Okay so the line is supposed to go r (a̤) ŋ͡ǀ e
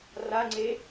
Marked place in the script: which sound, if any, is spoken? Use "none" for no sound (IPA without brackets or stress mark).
a